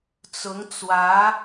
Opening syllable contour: rising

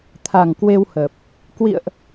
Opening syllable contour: low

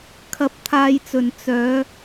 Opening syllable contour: rising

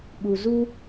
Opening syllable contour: low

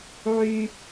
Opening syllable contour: low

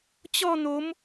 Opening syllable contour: falling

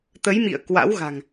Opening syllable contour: rising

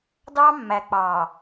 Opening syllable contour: high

